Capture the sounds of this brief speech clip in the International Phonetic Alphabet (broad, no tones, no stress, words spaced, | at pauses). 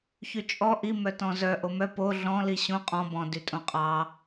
çyt͡ʃʼɔ ʔi mœtɔ̃zœ ʔomœ po ɮɔ̃ liɕõ qʼɔ̃ bɔ̃ dytʼõqʼɑ